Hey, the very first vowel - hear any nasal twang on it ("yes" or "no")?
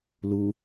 no